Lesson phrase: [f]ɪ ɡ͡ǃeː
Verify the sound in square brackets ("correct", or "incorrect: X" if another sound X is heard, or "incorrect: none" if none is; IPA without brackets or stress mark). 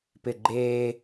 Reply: incorrect: p